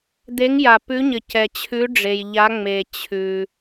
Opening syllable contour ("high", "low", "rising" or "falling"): rising